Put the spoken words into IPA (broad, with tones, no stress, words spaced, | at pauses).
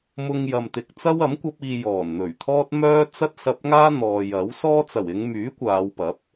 mʊ˧ŋ jɐ˨mt̪ɪ˨k̚ t͡sɐ˥wɐ˨˥m kʷɐ˥p̚iː˧ jɔː˨˩nn̪ɵ˨˩ɥt̪ʰɔː˥t̚ mœː˥ t͡sɐ˥t̚sɐ˧p̚ŋaː˥ n̪ɔː˨jɐ˨˥w sɔː˥t͡sɐ˨˩wɪ˨˧ŋ myː˨˥ kʷaː˨˧wpɐ˨˥p̚